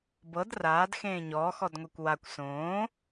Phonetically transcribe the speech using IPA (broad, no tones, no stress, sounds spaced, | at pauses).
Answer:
b ɤ d r aː d x ẽː ɲ ɔː x ɔ d ŋʷ ɛ kʷ w a kʷ s õː